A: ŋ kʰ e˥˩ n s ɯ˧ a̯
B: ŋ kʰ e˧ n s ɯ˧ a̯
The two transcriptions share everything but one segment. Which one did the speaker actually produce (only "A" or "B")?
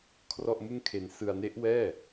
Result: B